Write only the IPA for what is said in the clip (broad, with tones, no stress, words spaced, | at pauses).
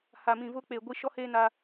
ha˨mĩ˨vʊ˦ k͡pe˨ ɡʷi˦ʃɔ˦heː˦na˦